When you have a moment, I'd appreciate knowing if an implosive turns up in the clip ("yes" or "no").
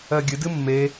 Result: no